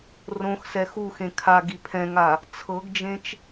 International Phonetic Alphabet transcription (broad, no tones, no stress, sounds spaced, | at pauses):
r õ x s ɛ x u x ẽ kʰ a ɡ i pʰ ɛ̃ ŋ a | t͡sʰ ɤ ɡ d͡ʒ ẽ t͡ʃ